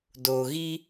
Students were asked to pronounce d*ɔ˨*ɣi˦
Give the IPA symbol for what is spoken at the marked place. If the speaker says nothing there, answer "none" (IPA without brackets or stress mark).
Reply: o˨